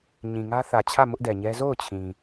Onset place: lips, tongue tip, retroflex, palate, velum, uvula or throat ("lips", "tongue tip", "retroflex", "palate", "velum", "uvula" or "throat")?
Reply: palate